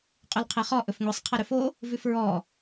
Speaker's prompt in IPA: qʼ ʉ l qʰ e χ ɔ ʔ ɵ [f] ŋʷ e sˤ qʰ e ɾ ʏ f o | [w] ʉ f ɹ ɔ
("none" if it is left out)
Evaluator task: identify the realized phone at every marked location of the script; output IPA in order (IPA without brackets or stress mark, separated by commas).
f, v